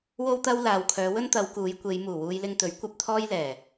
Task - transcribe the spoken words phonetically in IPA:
w o˥ w t̪ ɐ˥ w l aː˨ w kʰ œː˨˧ w ɵ˥ n t̪ ɐ˨˧ w k uː˨˧ j kʷ e˨˧ j m uː˨˩ w uː˧ j l ɪ˧ ŋ t̪ ɵ˨˥ ɥ kʷ ɐ˧ p̚ t̪ʰ ɔː˥ j l ɛː˨˩

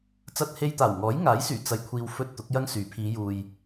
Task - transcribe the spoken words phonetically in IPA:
t͡s ɐ˧ t̚ h e˧ j t̪ aː˨˩ w ŋ ɔː˨˥ j ŋ aː˨˥ j s yː˨˩ t͡s ɐ˨ j kʷʰ iː˨ w f ɵ˧ t̚ t̪ ʊ˨˥ k̚ j ɐ˥ ŋ s yː˨˥ pʰ iː˨˧ j uː˨ j

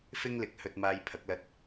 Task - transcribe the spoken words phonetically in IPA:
f ɪ˥ ŋ l ɪ˨˥ k̚ h ɵ˧ t̚ m aː˧ j pʰ ɐ˨˥ k̚ l ɐ˧ t̚

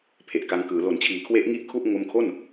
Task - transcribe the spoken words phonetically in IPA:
pʰ e˨˩ ʔ k a˧ ŋ k ɯː˩˦ l o˨˩ n t͡ɕʰ iː˩˦ kʰ w e˦˥ ʔ ŋ i˥˩ ʔ kʰ u˥˩ ʔ ŋ o˦˥ m kʰ o˥˩ n

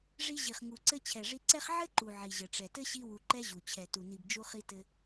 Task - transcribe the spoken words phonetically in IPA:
ʐ i˧ ʑ i˨ χ ŋ u˨ ǀ ɘ˧ t͡ɕʰ ɛ˨ ʐ i˧ ǀ ɛ˦ χ ʕ ɘ˦ ǃ u˨ ʕ i˨ ʑ ɘ˨ ʈ͡ʂ ɛ˨ t ɘ˦ ɕ i˧ w u˨ ǃ ɛ˧ ʑ u˨ t͡ɕʰ ɛ˨ t u˨ n i˨ b d͡ʒ u˧ χ i˧ t ɘ˧

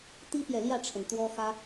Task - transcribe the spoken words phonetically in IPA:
t̪ i˥ p j ɛ˨ l j ä˥˩ ʈ͡ʂʰ ə˩ n t̪ w ɔ˥ x ä˥

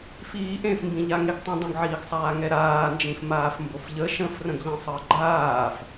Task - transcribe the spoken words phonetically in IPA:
f iː ʔ ẽ f m b ĩ ʎ a ŋ e ɡ tˤ ə̃ dˤ ə̃ ɡ ʕ iː ɡ sˤ aː ŋ ɛ ɾ aː n d͡ʒ ĩ f m aː f m b o f ʎ ə ʃ ə̃ f r ə̃ ɡ ʎ ĩ sˤ əː ɡ͡ǃ aː f

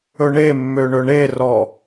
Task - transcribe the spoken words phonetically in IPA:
ɵ ɳ e mː ø ɳ ɵ ɳ e r ɔ

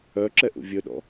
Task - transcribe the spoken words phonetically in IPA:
œ ǁ ɛ ʔ ṵ vʲ ɵ ɗ ɔ̰

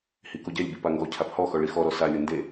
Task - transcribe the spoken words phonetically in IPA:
h i k o ɟ ɛ lʲ b i p a ŋ ɡ ɔ cʰ a p h ɔ x ɔ ɭ i x ɔ ɾ ɔ s a lʲ o n d e

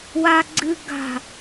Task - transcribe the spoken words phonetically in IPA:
w a ɡ͡ǀ ɨ ɡ a̤

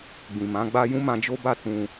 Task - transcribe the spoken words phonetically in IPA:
ɡ͡b ĩ˨ m ã˨˦ ɡ͡b a˦ j ũ˦ m ã˧ d͡ʒ o˦ b a˦˨ t ũ˧

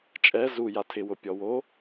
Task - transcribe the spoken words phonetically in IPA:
t͡ʃʼ ɛ z u j a tʰ ɪ w ʊ pʲ ɔ w o

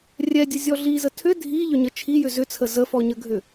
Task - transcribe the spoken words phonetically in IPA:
rʲ ɛ dʲ ə zʲ ɔ ɮ i z ə tʰ ʏ dʱ i ʎ ʏ ɲ ə t͡ʃʰ i j ʏ z ʏ t͡sʰ ə z ə f ɔ ɲ ə ɡʱ ʏ

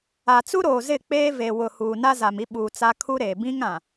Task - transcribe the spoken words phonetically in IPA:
a˨ t͡s u˦ ɾ oː˨ z ɪ˦˨ k͡p eː˦ v e˨ w ʊ˨ h uː˨ n a˦ z a˨ m i˦ ɓ uː˨ t͡s a˦ kʰ u˦ ɾ eː˨ b ĩ˦ ŋ ã˨

